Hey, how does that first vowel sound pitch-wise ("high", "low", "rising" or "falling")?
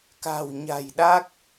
low